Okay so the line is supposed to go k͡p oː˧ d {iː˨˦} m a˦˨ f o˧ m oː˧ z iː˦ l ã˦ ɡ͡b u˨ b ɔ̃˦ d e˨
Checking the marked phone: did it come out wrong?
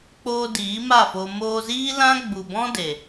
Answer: no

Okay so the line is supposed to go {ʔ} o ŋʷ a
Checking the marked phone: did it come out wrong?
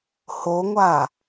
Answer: yes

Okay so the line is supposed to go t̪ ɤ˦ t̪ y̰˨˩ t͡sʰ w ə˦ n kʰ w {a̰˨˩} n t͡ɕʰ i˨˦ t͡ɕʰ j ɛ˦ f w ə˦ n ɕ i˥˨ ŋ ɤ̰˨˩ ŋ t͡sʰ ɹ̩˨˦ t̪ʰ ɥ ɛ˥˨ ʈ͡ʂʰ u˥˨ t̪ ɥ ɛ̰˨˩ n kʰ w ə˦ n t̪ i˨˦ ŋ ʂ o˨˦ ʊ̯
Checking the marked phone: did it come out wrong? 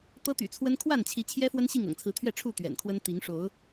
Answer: yes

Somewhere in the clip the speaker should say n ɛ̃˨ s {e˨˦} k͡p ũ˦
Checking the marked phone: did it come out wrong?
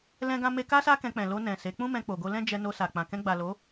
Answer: no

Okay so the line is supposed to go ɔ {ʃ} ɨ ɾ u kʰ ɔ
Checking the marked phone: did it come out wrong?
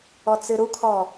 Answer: yes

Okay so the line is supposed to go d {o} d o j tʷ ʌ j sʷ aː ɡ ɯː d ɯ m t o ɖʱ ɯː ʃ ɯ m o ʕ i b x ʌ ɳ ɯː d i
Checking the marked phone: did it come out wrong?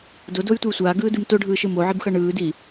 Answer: no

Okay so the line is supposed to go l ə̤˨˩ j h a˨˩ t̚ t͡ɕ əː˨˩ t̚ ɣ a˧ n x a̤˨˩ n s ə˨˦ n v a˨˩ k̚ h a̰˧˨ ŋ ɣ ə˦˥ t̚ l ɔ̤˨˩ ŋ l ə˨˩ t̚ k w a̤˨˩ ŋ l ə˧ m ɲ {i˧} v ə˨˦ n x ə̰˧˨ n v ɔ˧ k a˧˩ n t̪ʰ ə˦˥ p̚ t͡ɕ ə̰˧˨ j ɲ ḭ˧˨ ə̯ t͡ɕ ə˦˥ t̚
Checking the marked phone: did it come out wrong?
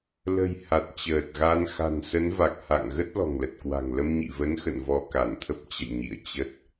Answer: yes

